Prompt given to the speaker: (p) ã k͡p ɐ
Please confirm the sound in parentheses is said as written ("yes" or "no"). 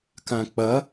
no